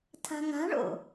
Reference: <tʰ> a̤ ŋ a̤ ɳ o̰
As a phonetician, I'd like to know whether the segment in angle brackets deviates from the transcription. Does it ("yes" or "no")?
no